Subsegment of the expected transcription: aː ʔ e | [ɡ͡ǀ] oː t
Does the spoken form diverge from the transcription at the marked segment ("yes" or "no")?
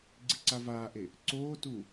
yes